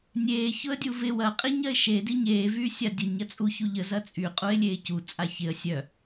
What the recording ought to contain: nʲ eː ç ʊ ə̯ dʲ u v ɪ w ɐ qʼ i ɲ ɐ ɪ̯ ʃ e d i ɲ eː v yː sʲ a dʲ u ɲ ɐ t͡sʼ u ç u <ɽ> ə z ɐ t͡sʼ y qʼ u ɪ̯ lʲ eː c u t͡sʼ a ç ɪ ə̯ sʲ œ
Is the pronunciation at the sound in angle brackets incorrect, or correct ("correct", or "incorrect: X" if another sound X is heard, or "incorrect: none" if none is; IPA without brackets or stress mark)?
incorrect: ʎ